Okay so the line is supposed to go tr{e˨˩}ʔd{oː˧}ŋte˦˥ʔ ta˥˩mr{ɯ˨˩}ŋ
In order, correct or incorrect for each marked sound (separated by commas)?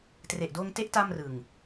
correct, correct, correct